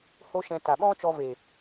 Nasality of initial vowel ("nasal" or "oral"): oral